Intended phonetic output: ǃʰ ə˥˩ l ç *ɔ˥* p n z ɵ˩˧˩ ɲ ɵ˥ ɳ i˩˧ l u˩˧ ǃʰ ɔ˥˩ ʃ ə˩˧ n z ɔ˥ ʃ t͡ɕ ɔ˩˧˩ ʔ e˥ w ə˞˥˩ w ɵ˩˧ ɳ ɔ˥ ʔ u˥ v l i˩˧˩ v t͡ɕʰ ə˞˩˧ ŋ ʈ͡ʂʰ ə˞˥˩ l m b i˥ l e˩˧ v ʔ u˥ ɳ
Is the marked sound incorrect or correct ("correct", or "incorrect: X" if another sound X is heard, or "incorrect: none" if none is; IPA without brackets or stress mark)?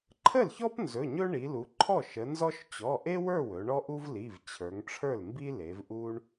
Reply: correct